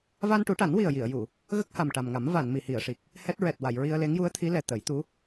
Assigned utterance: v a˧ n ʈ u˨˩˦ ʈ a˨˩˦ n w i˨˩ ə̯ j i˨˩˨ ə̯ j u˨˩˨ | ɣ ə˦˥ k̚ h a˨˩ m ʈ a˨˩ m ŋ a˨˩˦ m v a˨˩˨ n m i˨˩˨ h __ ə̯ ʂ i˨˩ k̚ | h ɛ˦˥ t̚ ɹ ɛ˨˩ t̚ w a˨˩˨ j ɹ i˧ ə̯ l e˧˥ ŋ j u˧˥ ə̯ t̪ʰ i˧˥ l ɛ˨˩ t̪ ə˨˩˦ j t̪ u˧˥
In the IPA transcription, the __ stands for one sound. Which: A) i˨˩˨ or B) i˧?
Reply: A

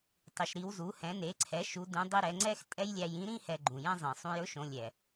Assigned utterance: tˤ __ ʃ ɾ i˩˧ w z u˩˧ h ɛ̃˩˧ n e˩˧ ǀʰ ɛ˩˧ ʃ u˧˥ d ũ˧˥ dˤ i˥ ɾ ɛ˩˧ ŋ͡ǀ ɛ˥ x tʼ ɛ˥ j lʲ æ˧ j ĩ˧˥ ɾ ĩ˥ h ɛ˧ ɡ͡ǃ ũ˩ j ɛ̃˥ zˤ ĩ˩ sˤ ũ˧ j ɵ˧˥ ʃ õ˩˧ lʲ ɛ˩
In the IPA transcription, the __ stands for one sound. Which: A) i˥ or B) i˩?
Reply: B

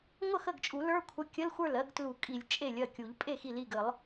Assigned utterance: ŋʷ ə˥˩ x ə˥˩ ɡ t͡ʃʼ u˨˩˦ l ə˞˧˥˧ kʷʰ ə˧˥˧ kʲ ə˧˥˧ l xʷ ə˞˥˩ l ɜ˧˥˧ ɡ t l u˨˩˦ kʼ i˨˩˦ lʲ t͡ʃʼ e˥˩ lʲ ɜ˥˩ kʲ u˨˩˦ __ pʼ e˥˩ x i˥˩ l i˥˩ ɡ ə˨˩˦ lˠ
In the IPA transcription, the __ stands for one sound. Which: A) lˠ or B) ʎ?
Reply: B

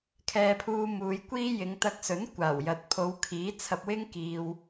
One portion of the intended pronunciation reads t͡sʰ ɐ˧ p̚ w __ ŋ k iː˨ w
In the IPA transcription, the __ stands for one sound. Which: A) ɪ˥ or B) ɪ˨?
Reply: A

